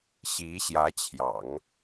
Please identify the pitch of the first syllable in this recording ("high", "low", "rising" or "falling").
rising